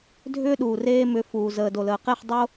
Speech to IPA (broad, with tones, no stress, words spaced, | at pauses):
dʱʏː˦ɗuː˨reː˦ mʏ˨˦fuː˨ zəː˨ do˨ləː˨qe˦˨χ dˤo˦